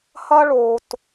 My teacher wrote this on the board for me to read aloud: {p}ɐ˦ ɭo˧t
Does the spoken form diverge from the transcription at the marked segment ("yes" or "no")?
yes